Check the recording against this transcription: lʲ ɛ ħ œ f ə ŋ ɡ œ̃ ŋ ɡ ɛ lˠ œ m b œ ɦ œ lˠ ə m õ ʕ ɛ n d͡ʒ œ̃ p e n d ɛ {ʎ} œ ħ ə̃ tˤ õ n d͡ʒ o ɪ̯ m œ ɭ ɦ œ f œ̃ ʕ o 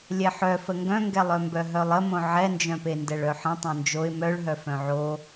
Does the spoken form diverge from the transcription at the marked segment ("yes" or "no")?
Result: yes